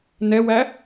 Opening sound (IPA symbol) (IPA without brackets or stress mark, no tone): n